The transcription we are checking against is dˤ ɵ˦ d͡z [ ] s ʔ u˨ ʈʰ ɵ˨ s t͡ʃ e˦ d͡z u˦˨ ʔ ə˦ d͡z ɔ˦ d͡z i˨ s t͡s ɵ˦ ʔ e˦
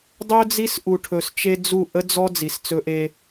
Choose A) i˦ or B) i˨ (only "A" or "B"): A